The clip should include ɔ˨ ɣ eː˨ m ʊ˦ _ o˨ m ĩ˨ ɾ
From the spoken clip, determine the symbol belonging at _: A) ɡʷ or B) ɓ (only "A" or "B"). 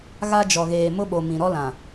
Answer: B